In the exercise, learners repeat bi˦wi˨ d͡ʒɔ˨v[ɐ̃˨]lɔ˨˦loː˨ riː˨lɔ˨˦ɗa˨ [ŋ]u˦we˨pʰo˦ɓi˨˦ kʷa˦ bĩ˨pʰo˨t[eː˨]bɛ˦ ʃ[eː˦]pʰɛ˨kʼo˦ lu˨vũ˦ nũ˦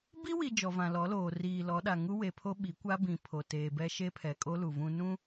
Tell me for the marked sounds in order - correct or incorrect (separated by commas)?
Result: incorrect, correct, correct, incorrect